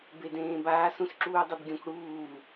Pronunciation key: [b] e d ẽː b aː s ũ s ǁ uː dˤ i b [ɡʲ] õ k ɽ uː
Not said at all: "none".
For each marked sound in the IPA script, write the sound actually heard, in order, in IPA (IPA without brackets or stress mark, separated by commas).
b, ɡʲ